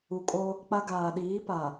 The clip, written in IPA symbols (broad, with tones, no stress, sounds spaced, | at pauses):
u˨ kʼ o˦ | k͡p a˦ ɡ aː˨ ɗ iː˨˦ p a˨